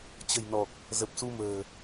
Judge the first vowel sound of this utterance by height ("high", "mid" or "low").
mid